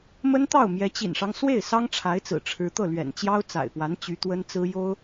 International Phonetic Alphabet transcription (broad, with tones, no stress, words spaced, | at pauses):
mə˥nt̪ɑ˥˩ʊ̯ mjɛ˧˥t͡ɕḭ˨˩nʂɑ˦ŋ swe˥˩ɪ̯ sɑ˥ŋʈ͡ʂʰa˧˥ɪ̯t͡sɹ̩˨˩ ʈ͡ʂʰɻ̩˧˥t̪ɤ˥˩ lɥɛ̰˨˩n t͡ɕjɑ˥ʊ̯ t͡sa̰˨˩ɪ̯pwa˧˥n t͡ɕy˧˥t̪wə˥nt͡sɹ̩˥ jo˥ʊ̯